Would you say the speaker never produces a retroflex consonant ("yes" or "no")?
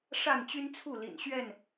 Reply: no